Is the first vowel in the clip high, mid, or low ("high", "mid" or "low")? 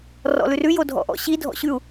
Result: mid